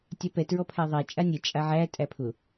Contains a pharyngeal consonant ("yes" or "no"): yes